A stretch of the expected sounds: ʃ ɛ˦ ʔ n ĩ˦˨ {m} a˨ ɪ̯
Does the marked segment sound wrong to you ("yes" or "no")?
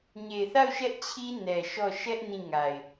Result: yes